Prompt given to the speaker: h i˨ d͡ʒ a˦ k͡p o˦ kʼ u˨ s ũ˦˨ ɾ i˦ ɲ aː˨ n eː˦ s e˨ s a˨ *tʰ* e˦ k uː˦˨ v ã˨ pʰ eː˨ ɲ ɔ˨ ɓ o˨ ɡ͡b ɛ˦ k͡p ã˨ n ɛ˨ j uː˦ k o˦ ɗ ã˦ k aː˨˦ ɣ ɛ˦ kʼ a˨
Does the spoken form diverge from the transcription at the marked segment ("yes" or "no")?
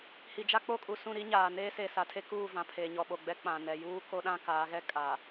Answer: no